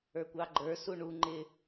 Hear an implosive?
no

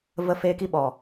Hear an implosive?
yes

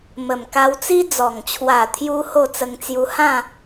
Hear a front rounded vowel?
no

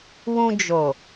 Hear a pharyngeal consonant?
no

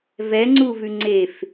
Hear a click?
yes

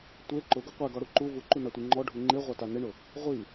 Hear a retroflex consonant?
yes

